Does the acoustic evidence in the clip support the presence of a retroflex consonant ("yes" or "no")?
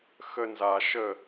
no